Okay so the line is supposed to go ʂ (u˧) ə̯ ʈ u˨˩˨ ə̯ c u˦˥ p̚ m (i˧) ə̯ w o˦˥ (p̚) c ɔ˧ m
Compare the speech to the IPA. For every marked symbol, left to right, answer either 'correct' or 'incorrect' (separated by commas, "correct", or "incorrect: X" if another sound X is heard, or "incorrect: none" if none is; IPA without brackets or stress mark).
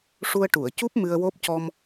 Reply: correct, incorrect: ɨ˧, correct